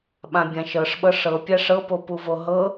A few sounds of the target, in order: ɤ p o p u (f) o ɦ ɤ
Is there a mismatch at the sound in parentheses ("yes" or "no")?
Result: yes